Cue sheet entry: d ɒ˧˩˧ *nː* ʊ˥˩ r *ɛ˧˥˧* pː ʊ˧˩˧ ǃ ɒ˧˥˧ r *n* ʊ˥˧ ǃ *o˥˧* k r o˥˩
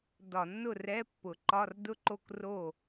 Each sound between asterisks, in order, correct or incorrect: correct, correct, incorrect, incorrect

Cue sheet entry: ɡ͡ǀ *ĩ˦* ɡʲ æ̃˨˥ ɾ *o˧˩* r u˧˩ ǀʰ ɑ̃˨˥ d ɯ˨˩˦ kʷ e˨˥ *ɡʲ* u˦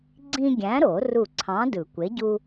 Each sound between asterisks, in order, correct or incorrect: correct, incorrect, incorrect

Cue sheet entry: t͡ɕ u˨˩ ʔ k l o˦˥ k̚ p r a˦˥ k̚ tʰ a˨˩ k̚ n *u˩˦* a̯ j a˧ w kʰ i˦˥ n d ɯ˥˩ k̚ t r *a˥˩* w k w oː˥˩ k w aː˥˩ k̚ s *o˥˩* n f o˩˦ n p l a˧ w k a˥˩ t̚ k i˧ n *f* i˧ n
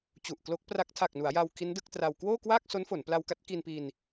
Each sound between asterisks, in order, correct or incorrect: correct, incorrect, incorrect, incorrect

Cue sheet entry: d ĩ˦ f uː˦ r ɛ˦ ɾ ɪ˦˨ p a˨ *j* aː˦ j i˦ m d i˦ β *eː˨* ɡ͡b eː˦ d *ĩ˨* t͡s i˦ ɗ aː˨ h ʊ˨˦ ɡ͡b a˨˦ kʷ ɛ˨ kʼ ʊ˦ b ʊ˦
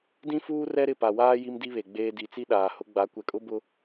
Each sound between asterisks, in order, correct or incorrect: incorrect, incorrect, incorrect

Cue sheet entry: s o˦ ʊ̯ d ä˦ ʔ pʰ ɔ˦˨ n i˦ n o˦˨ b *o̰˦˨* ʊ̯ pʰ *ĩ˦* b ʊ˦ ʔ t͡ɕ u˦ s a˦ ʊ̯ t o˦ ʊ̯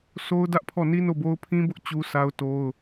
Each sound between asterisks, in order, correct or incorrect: incorrect, correct

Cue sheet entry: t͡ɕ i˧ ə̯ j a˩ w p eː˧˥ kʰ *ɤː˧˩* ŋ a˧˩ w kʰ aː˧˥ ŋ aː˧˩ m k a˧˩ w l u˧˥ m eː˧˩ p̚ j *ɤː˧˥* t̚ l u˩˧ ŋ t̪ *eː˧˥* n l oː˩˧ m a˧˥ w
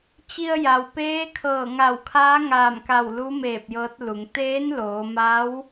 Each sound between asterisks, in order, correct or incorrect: correct, correct, correct

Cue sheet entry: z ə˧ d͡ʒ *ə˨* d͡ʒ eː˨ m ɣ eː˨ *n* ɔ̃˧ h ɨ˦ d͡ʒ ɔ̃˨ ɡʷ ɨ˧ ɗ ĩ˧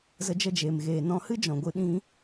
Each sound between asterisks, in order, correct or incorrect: incorrect, correct

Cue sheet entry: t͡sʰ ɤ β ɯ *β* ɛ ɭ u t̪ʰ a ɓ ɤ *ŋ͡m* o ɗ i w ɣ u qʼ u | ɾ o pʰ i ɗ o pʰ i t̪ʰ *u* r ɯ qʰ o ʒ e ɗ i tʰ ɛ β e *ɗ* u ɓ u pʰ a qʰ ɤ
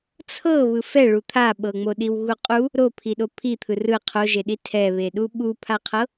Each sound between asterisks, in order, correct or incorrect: incorrect, correct, incorrect, correct

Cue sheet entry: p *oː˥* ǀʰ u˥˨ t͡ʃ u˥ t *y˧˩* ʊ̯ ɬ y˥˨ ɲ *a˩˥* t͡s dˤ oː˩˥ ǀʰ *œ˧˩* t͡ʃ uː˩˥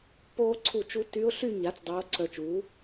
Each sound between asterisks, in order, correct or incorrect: correct, incorrect, correct, correct

